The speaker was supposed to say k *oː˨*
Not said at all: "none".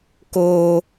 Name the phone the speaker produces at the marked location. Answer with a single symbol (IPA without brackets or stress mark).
oː˦